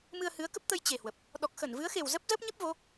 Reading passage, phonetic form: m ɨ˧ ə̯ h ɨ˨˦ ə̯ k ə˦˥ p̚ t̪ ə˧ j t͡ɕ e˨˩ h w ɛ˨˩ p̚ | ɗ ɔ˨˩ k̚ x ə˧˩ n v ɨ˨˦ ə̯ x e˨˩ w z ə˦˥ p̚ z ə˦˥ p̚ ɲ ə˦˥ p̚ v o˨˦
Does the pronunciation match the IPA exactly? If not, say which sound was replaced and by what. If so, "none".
ɛ˨˩ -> ə˨˩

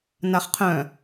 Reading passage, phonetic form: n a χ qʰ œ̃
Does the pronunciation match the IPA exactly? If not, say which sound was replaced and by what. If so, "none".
none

